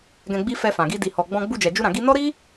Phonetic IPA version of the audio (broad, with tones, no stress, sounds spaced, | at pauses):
ɡ ɛ̃˧ ɡ͡b i˦ f ɛ˧ f ã˨ ɡ i˧ d i˨ h ɔ˨ ɡ͡b ɔ̃˧ ɡ͡b u˧ d͡ʒ ɛ˨ d͡ʒ u˧ ɾ ã˨ ɡ i˧ n ɔ˦ ɾ i˦